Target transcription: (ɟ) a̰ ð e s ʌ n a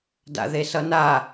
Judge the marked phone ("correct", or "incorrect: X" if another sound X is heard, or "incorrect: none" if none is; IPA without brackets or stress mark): incorrect: d